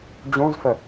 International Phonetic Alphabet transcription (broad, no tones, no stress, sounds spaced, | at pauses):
d͡ʑ ũ z f ə